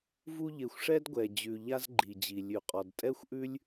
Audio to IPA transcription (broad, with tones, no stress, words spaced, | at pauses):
vu˦ ʎe˨xʷʂɛ˥d ɡʷɛ˩ d͡ʑʉ˩ ʎa˥zɡ͡ǃi˩d͡ʑi˩ lʲʉ˩qʼɔ˩dtʼɛ˥xʷʔʉ˥lʲ